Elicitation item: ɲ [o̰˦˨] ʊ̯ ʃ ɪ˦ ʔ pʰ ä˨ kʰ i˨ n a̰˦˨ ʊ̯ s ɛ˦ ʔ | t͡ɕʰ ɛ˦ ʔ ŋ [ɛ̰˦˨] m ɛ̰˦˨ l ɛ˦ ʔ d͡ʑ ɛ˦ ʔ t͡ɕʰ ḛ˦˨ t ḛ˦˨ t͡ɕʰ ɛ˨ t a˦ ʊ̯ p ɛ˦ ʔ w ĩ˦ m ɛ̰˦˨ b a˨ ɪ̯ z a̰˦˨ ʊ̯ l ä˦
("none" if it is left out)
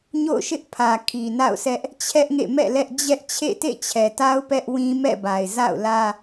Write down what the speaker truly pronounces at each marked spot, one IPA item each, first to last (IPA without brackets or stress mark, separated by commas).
o̰˦˨, ḛ˦˨